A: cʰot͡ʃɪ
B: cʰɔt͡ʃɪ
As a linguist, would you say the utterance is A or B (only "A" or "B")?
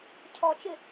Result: B